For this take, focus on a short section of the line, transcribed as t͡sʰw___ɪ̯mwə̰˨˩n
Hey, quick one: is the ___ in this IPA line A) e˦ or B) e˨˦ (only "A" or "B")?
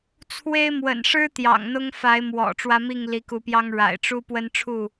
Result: A